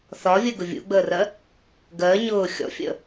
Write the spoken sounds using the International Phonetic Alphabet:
θɒvʲəːɡʊ vʲṵɡ͡bəːrɜ | ɡɜː ɲʊː xʲɔ̰fʲə̰

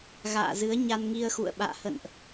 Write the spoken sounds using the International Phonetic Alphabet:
ɣa̰ː˧˨zɨ˨˦ə̯ ɲa˧nŋi˧ə̯xṵ˧˨ə̯ɓa̰ː˧˨ hə̰˧˨nʔ

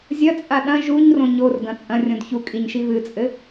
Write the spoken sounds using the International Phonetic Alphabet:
zʲɐt͡sʼa ɗɐ̃ ʒuɲrõ ɲorɡɐ̃ t͡sʼɐ̃rʲõd çukʼiɲʃi βɨt͡sʼɘ

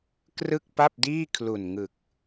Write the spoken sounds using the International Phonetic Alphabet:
krɯ˥˩k̚pa˥˩p̚diː˥˩ kʰlu˨˩nŋɯ˨˩k̚

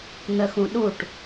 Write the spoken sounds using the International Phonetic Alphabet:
n̪əxũɗuʈ

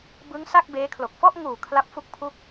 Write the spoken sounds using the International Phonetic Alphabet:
bɯ˦˥ŋ sa˥˩k̚beː˦˥kʰlo˨˩k̚ fɔ˥˩ʔŋuː˨˩ kʰla˦˥p̚fu˦˥k̚ pʰu˦˥k̚

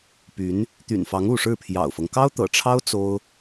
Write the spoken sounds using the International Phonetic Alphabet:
py˧˥n | t̪y̰˨˩nfɑ˧˥ŋ u˥˧ ʂɻ̩˥˩pʰjɑ̰˨˩ʊ̯fɤ˦ŋ kɑ˥ʊ̯t̪ɤ̰˨˩ʈ͡ʂʰɑ˥ʊ̯ t͡so˥ʊ̯

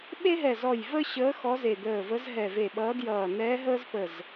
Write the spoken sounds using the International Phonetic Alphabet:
ɓe˥ɦɛ˧˩zɔ˧˩j və˥ɕəː˧˥ xɔ˧˥ze˧˩d̪əː˧˩və˧˥z ɦɛ˧˩ve˧˩ɓʌː˧˥djʌː˧˩ nɛː˧˥ɦəː˥zpə˧˩z

